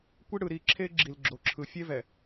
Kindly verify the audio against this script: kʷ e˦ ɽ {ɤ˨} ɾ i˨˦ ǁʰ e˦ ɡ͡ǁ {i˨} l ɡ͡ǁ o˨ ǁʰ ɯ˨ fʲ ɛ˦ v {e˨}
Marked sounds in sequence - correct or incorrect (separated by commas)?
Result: incorrect, correct, incorrect